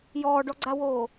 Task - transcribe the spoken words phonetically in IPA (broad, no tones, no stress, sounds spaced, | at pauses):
j ɔː ɖ ɔ ɡ͡ǀ a w oː